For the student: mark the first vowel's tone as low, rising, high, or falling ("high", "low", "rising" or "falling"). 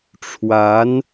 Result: rising